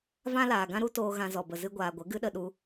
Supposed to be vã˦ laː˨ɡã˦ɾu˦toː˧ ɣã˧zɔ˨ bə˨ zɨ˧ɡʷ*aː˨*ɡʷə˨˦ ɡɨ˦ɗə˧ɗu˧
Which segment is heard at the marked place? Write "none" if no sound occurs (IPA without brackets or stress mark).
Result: aː˨